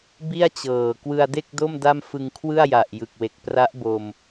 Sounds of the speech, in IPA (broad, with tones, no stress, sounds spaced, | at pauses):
b i˥˩ a̯ t͡ɕ ɤː˨˩ k w ɯ˧ a̯ d e˥˩ k̚ d o˥˩ m d a˥˩ m f ɯ˧ ŋ kʰ w ɯ˥˩ a̯ j a˨˩ ʔ j ɯ˨˩ k̚ w e˨˩ k̚ p r a˦˥ ʔ b o˧ m